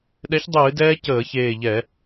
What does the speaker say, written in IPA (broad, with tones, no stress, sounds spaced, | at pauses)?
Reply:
ɗ ɛ˨˥ ç dˤ ɨː˧˩˧ d ɛː˦˥ c əː˧˩˧ ç eː˧˩ ʎ ɛ˧˩˧